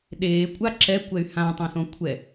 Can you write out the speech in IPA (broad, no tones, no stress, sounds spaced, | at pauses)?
ɗ eː kʷʼ a ǁ ɛ kʷ ɛ y̯ h ã tˤ õ s õ kʷʰ ɛ